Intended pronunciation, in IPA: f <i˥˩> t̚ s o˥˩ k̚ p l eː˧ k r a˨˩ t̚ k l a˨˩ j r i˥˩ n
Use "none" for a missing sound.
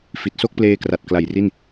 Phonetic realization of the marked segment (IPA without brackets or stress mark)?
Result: i˨˩